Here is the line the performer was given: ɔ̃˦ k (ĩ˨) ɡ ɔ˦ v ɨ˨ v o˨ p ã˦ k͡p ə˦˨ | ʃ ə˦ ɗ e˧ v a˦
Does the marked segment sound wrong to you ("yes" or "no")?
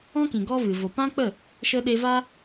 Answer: no